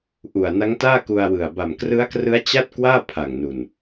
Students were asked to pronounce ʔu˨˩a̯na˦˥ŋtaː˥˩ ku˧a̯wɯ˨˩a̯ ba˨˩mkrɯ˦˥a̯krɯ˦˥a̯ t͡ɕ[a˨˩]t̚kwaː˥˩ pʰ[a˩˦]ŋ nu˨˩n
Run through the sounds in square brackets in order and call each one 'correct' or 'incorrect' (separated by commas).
incorrect, incorrect